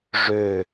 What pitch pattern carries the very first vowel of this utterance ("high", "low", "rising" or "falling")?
falling